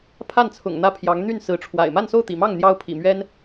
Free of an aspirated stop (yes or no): no